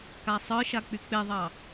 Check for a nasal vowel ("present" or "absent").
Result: absent